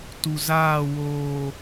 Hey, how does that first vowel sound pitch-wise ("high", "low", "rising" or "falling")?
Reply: low